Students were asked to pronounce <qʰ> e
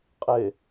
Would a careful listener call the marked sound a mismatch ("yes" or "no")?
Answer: yes